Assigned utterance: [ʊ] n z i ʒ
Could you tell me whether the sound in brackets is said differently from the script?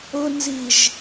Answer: no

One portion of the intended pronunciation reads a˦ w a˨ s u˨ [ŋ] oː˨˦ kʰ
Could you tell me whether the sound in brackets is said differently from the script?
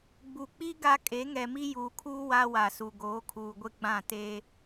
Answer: yes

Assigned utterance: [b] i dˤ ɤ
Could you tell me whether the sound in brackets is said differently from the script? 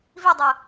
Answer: yes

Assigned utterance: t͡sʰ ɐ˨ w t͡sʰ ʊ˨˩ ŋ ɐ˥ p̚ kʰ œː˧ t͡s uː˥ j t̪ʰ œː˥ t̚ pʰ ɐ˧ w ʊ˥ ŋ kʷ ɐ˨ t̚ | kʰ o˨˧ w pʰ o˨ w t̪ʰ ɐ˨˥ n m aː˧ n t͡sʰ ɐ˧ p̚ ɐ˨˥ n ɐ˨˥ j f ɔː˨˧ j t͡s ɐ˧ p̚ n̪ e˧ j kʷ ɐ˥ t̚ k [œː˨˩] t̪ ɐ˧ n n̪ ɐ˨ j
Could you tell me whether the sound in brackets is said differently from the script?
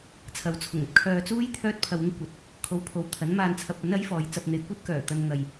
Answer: no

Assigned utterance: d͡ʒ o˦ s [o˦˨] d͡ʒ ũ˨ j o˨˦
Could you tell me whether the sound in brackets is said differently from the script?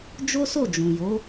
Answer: no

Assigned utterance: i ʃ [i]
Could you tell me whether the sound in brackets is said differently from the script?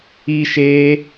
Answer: yes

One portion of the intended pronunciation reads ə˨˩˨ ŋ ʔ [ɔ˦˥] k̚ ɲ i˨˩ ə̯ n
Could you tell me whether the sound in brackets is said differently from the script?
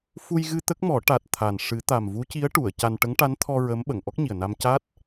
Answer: no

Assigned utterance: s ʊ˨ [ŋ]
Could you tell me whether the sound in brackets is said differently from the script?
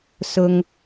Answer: no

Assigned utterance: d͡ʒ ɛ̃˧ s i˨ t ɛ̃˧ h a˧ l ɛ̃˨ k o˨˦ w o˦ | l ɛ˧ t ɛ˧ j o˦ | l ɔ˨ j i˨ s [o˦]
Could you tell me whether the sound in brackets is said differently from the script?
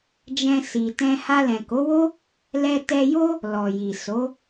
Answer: yes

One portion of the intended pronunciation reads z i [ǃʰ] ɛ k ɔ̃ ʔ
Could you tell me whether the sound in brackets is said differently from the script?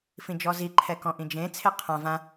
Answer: no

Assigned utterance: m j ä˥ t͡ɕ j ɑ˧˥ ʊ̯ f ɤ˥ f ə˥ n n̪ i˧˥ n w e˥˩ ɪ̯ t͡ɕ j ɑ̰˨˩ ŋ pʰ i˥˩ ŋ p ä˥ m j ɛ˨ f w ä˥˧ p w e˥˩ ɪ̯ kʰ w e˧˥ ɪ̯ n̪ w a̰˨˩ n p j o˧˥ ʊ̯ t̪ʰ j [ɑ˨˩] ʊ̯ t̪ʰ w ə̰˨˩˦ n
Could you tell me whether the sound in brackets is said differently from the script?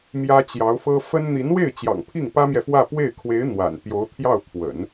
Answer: yes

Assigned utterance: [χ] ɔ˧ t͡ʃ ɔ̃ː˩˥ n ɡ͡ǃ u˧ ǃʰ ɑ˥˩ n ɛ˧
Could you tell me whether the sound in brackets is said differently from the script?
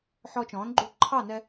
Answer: yes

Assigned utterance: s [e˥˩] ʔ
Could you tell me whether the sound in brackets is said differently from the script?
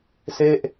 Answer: no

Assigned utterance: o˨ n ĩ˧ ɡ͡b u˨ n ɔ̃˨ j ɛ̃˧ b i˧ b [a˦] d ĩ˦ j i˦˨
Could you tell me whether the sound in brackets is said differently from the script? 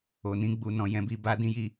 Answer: no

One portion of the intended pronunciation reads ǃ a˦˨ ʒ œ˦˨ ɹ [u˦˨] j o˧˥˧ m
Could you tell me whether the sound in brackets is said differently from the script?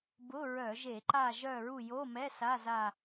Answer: no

